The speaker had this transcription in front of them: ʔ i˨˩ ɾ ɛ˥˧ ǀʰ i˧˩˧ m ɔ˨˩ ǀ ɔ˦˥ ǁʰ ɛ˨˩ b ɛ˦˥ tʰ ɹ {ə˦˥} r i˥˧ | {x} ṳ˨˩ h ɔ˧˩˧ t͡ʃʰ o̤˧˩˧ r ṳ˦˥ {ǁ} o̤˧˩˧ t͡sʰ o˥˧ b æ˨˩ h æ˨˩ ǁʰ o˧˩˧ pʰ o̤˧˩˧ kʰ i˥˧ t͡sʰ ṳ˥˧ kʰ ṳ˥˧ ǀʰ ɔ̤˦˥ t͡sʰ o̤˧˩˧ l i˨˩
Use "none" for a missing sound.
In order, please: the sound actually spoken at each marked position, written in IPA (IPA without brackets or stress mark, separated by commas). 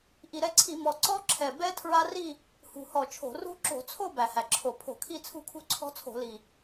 a˦˥, h, ǁ